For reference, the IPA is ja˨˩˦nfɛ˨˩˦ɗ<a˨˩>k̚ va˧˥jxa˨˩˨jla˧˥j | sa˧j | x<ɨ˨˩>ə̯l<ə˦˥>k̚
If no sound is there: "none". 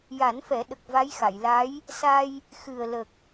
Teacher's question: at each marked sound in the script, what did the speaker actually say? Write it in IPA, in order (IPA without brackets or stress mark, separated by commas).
ə˨˩, ɨ˨˩, ə˨˩